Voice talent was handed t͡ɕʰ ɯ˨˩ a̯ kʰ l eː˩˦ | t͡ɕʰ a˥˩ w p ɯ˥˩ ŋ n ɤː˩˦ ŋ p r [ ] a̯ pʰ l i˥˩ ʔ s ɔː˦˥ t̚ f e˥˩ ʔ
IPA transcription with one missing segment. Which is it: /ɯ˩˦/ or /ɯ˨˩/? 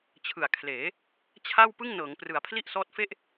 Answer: ɯ˩˦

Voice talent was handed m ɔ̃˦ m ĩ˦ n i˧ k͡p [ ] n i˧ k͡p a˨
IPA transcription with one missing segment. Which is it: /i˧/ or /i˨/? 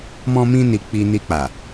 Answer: i˧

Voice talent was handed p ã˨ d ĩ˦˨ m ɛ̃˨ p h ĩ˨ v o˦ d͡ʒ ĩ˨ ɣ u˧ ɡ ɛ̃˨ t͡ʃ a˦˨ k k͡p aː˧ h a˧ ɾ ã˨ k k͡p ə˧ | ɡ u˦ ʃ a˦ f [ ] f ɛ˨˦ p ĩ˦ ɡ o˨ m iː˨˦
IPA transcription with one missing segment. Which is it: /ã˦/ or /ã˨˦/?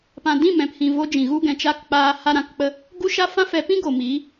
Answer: ã˦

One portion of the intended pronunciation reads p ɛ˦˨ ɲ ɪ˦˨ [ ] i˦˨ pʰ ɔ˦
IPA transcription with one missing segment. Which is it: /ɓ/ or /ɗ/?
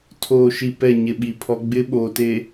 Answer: ɓ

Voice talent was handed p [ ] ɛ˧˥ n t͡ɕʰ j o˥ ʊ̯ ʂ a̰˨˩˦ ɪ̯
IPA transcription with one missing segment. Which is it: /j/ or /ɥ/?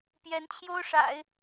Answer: j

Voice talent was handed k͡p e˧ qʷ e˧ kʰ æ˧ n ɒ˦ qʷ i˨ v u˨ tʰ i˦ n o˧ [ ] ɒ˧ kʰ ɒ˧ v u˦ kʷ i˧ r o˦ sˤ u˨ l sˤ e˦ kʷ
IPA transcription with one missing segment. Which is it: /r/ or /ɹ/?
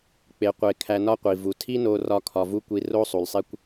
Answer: r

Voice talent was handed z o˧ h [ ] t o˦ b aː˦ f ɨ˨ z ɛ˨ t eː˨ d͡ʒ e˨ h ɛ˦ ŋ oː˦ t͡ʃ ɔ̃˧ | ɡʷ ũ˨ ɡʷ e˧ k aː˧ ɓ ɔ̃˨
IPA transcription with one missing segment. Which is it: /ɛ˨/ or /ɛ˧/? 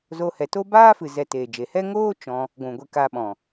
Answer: ɛ˨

